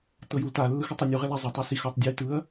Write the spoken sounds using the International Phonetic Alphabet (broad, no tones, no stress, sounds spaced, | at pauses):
t ɤ j u l t a lː ɯ x ɔ tˤ i nʲ u ʁ ɛ l a zˤ o tˤ ɯ s i x ɔ tˤ dʲ ɯ j t ɯ ɐ̯